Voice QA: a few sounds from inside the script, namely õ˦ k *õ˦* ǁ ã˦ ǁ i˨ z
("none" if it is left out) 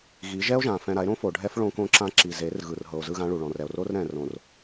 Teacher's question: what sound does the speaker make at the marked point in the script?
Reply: õ˦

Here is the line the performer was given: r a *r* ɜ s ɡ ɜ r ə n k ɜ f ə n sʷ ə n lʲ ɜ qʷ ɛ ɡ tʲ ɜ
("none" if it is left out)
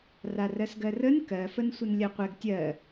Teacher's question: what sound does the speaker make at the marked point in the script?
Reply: r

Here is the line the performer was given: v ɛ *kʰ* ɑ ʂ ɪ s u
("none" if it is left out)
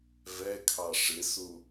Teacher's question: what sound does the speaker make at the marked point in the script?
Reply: kʰ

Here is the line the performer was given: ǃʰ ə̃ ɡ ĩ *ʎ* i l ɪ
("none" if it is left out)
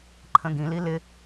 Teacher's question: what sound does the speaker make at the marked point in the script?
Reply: l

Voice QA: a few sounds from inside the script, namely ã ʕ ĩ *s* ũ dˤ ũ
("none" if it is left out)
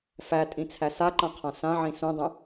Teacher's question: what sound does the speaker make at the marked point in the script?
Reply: s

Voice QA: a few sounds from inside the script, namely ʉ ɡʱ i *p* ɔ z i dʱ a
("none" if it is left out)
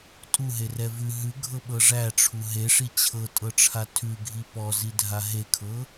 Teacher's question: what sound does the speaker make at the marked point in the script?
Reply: p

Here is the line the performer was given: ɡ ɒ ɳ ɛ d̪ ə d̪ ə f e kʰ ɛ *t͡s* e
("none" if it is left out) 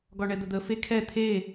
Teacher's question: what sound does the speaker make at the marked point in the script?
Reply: t̪ʰ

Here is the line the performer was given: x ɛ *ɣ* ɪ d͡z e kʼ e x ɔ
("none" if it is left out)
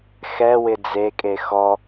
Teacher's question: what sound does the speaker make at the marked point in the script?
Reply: w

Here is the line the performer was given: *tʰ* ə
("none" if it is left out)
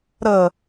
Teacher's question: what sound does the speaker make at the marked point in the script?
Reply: ɾ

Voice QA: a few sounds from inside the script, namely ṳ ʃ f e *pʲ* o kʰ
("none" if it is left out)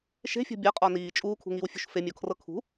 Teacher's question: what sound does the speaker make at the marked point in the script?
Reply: mʲ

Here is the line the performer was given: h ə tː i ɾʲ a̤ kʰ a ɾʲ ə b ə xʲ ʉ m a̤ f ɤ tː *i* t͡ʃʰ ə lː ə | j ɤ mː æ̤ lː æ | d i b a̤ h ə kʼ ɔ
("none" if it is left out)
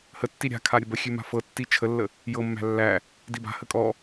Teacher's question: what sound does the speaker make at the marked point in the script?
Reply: i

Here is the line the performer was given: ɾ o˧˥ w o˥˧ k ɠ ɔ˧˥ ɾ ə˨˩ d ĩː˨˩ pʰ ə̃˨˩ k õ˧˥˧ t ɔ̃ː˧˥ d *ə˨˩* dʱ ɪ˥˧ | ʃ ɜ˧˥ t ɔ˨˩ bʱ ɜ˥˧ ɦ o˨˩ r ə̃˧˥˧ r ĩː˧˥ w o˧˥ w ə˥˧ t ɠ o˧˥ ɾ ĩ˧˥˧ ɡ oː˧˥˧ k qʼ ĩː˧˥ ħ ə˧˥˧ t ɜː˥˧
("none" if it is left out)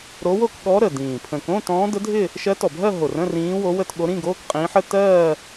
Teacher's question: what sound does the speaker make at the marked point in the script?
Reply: ə˧˥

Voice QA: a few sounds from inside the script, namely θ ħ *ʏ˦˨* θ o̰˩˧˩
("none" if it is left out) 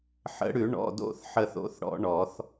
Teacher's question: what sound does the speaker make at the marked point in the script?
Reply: ə˦˨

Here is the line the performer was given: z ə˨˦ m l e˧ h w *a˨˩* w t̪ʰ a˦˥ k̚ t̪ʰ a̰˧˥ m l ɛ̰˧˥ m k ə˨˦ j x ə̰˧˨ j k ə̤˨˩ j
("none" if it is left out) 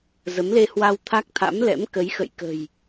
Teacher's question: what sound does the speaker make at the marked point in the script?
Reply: a˧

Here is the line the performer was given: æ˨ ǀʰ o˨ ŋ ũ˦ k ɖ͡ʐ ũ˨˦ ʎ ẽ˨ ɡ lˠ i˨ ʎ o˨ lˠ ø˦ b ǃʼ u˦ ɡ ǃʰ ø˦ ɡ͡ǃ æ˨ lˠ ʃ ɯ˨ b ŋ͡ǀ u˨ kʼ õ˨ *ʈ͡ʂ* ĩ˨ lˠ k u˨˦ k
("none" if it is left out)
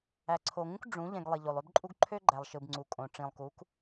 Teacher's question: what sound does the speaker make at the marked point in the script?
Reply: ʈ͡ʂ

